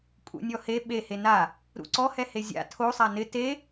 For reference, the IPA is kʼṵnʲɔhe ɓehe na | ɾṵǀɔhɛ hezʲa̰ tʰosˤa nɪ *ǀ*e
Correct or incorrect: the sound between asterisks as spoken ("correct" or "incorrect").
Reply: incorrect